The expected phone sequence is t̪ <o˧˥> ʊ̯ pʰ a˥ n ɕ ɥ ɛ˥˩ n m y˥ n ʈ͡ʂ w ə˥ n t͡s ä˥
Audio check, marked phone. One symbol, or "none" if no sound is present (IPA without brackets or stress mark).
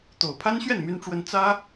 o˨˩